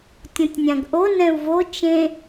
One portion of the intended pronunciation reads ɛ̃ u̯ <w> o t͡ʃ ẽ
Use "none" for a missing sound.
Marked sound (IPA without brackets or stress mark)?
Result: v